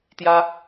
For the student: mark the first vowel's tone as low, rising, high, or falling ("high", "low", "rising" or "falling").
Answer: high